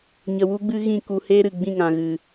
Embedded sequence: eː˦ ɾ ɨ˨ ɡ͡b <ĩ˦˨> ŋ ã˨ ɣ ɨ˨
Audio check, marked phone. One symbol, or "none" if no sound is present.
ĩ˦˨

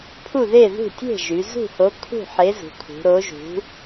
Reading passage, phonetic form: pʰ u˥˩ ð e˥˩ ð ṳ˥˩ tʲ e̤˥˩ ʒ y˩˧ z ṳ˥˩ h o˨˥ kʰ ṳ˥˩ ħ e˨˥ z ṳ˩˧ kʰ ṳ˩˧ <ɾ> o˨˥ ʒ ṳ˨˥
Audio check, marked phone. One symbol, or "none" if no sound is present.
ɾ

